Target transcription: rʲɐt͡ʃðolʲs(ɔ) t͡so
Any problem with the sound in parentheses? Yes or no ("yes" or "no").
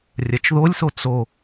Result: yes